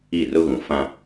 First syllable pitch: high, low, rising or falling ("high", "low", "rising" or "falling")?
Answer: falling